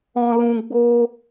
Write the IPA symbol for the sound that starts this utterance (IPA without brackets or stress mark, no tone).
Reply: ɔ̃